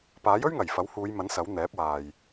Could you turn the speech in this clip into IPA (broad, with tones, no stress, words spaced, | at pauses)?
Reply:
paː˨˥jɵ˥ɥŋɐ˨˩j fɐ˨˥whuː˨˧jmɐ˨˥n sɐ˨˥wn̪ɛː˨˥p̚ waː˨j